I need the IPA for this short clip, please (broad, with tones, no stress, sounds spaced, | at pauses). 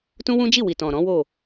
t ũ˦ w ũ˦ d͡ʒ i˦˨ w i˨ t ɔ̃˨ ɾ ɔ̃˨˦ w o˦˨